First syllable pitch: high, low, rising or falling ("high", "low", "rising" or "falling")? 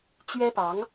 high